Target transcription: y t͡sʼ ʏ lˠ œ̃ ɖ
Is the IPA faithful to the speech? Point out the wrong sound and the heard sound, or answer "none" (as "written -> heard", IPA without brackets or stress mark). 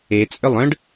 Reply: y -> e